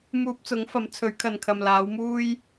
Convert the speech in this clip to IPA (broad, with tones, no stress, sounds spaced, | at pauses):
m uː˧ p̚ t͡s ʊ˨˥ ŋ f ɐ˨˥ m t͡sʰ ɵ˨˥ ɥ kʰ ɐ˨ n kʰ ɐ˨ m l aː˨˥ w m uː˥ j